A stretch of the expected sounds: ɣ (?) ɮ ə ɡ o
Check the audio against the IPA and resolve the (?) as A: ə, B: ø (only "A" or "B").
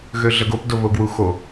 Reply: B